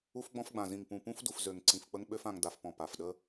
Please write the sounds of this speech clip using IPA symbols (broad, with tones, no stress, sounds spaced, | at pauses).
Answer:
u˧ f ɡ͡b ɔ̃˧ f ɡ͡b ã˨ z ĩ˨ ŋ p ũ˨ p ũ˧ f d u˨ f z ø˨ ŋ ǀ ĩ˨ f k͡p ə˧ ŋ ɓ ø˧ f ã˨ ŋ d a˨ f p ɔ̃˨ p a˨ f ɗ ə˦